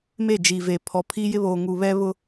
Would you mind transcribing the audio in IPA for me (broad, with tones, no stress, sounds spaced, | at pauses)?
m e˦˨ d͡ʒ iː˨ v e˨ pʰ ɔ˨ pʰ i˦ j ɪ˦ β oː˨ ŋ u˨ β ɛ˦ β ʊ˦